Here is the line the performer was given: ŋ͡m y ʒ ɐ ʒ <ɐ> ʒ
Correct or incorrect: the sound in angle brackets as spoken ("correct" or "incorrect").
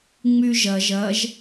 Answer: correct